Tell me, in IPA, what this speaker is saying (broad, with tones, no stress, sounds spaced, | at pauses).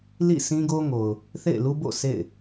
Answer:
l ḭ˦˨ s ĩ˦ ɡ o˦ ŋ o˨ ʊ̯ | θ ḛ˦˨ ɪ̯ l u˦ b o̰˦˨ s ḛ˦˨ ɪ̯